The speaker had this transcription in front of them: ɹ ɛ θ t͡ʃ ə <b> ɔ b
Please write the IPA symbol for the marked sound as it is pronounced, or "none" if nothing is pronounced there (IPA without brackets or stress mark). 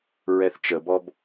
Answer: b